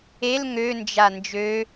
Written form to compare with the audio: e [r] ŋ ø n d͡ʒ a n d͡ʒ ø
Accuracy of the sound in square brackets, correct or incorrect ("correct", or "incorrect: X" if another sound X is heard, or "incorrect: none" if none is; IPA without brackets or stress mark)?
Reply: incorrect: l